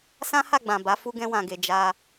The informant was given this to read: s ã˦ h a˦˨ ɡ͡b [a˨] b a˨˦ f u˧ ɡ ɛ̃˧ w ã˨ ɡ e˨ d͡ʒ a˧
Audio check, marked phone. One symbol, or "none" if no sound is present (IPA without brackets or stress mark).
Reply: ã˨